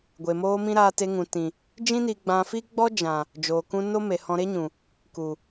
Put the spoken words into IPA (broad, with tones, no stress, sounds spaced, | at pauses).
ɡʷ e˨ m oː˧ m ĩ˧ ɾ aː˧ t e˧ ŋ ũ˨ t ĩ˨ | d͡ʒ ĩ˦ n i˧ ɡ͡b ã˧ f i˦ ɡ͡b ɔ˦ d͡ʒ ã˨ | d͡ʒ oː˨ k ũ˧ n o˦ m e˨ h ɔ̃˧ ɾ e˦ ɲ ũ˨ | k u˨